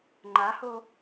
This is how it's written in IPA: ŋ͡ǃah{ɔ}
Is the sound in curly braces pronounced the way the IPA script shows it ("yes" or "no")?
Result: no